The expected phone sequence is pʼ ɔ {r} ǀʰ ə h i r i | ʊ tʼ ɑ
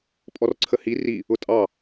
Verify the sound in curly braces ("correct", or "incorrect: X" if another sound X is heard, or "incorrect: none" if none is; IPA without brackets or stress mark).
correct